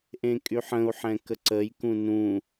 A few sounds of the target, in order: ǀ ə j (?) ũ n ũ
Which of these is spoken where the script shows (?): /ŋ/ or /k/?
k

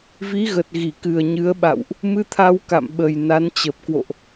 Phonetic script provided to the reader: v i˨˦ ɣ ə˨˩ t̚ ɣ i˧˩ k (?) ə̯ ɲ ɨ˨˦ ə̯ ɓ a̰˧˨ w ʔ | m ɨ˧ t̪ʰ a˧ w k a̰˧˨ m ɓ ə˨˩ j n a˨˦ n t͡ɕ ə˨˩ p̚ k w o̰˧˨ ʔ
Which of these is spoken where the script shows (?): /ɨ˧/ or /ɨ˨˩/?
ɨ˨˩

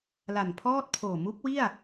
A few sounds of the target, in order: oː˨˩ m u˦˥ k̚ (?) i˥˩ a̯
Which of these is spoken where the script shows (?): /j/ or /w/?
w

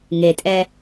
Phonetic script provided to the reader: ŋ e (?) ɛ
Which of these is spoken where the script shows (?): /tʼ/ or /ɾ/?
tʼ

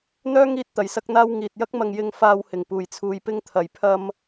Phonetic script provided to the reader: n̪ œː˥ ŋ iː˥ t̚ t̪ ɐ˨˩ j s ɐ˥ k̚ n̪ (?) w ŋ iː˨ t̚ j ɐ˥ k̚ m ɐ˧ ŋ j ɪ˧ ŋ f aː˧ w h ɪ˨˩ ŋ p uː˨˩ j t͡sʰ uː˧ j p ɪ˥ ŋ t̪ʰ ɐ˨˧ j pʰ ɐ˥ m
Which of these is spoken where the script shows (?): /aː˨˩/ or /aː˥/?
aː˥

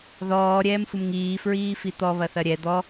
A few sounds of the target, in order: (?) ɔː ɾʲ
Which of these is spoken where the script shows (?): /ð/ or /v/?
ð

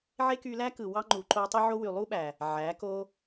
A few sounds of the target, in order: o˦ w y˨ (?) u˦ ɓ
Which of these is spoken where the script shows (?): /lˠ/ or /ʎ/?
lˠ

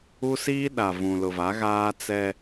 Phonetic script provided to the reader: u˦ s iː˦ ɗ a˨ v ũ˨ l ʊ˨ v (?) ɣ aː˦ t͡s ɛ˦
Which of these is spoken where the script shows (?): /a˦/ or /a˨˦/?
a˨˦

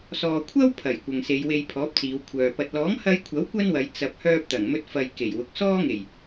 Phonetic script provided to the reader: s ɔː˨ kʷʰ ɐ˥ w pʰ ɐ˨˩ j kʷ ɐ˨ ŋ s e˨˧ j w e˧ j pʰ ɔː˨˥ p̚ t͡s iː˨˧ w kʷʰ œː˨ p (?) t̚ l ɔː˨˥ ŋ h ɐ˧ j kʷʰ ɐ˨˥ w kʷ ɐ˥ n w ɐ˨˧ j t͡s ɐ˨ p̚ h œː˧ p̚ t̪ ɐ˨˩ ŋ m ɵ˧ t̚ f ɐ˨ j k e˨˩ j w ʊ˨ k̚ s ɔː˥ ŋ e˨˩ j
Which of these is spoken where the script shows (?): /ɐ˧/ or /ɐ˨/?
ɐ˧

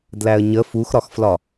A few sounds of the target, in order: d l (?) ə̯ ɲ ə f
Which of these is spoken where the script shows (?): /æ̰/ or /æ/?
æ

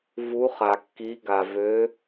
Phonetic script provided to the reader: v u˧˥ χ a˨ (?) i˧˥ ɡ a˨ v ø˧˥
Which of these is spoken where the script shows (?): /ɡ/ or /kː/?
kː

